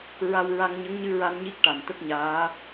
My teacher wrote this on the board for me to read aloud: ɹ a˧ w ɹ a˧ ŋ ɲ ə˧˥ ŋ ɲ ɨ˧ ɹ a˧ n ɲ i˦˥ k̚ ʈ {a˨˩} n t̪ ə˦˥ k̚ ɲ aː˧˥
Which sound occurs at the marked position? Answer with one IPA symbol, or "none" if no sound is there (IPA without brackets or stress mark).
a˨˩